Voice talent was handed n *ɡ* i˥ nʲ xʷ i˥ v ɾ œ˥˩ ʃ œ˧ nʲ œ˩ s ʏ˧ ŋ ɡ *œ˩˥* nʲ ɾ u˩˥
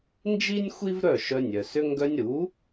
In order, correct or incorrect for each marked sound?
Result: incorrect, incorrect

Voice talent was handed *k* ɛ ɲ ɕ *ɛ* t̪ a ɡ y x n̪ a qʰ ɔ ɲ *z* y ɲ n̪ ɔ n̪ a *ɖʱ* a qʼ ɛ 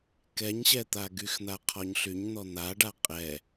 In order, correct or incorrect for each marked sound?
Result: correct, correct, incorrect, incorrect

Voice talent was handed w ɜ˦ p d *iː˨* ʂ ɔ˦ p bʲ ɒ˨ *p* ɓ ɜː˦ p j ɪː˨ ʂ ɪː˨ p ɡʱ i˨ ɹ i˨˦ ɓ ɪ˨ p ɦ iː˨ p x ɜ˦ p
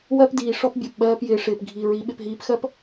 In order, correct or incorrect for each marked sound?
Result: correct, correct

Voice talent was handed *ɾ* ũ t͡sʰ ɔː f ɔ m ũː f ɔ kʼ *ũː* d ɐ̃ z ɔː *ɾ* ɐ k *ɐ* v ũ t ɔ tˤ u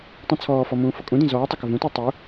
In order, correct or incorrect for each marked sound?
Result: incorrect, incorrect, incorrect, correct

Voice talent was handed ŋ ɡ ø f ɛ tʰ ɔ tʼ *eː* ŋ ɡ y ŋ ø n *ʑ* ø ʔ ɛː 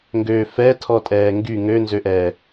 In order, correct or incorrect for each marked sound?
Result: incorrect, incorrect

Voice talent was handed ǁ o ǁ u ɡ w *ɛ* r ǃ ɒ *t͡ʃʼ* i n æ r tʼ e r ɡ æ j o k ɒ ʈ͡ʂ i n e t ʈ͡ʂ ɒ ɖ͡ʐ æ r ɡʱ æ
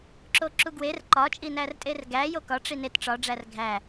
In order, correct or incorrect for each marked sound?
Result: incorrect, correct

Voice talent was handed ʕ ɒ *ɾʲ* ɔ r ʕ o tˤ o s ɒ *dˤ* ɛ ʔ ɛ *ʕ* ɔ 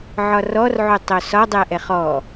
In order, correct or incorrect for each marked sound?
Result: incorrect, correct, incorrect

